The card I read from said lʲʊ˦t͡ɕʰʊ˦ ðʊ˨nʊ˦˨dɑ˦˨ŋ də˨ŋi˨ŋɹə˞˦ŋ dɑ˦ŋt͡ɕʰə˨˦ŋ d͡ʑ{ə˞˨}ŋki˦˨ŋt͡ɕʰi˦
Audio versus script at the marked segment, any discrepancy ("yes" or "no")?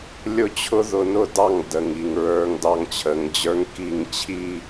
yes